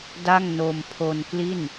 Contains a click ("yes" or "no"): no